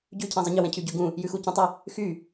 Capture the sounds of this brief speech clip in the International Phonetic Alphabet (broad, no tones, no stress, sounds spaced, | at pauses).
ɟ ʉ cʰ ɛ̃ zˤ ə ɲ ə w ɛ̃ cʰ y ɟ ʉ ɡ ũ | j ʉ x u c ũ tˤ ə | x y